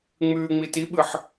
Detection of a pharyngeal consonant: present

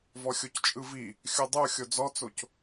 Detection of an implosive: absent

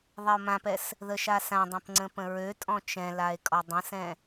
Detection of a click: present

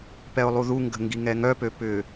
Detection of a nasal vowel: absent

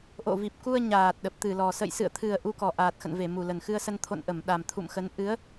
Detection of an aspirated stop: present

